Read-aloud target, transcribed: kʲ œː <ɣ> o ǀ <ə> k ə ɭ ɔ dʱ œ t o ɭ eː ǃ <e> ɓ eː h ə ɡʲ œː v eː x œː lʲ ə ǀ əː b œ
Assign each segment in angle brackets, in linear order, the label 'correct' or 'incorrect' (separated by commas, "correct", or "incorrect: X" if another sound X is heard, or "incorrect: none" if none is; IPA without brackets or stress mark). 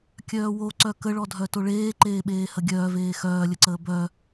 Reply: incorrect: w, incorrect: œ, incorrect: eː